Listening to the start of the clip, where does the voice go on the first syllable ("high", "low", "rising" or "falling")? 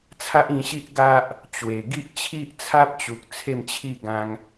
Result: high